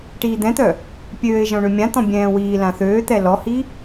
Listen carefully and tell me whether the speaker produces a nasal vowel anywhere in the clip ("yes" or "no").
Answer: yes